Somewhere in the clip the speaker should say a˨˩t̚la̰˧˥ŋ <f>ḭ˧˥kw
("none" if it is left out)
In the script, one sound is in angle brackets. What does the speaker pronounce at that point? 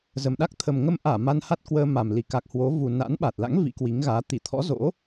v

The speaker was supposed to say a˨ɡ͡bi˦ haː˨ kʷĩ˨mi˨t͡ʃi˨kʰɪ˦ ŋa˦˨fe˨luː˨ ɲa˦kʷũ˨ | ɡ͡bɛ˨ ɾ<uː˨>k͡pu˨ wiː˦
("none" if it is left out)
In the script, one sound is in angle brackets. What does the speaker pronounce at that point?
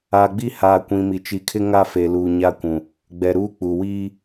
uː˦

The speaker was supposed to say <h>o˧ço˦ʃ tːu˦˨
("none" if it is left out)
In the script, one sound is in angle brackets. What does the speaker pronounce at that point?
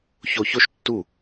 ç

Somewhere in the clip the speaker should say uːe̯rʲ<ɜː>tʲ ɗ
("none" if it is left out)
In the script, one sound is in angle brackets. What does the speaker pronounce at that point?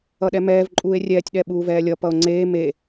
ɛː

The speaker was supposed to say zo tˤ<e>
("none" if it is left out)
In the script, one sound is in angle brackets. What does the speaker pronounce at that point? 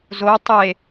e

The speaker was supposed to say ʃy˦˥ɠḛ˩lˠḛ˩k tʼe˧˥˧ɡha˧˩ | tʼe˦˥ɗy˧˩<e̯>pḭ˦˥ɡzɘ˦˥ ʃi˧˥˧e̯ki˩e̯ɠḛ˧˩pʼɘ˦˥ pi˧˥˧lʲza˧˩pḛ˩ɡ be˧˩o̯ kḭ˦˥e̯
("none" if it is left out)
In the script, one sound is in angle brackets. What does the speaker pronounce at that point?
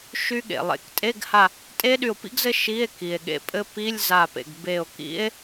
o̯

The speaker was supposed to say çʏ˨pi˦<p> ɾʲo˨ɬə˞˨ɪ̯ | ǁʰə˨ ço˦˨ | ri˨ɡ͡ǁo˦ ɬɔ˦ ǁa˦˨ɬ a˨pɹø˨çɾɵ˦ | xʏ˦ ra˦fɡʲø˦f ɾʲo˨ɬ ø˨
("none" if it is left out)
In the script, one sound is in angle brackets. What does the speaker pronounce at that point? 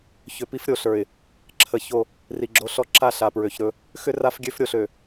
f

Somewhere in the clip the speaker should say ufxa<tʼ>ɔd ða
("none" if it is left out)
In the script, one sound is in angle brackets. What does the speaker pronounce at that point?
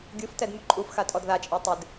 tʼ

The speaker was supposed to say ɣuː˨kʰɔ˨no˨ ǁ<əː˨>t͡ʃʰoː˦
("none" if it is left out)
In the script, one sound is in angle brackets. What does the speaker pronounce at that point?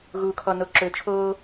ɵː˨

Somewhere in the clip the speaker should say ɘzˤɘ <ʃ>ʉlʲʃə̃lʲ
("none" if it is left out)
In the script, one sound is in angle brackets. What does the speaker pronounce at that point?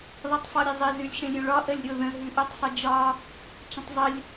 z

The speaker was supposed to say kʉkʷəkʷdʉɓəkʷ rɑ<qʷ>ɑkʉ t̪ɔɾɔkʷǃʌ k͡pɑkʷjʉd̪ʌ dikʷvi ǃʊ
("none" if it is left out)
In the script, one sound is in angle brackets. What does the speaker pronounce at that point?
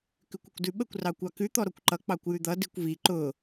kʷ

